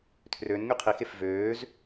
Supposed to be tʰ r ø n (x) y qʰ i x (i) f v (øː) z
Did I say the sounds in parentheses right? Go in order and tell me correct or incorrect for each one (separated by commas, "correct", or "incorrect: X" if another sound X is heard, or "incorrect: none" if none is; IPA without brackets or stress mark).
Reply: incorrect: ŋ, incorrect: e, correct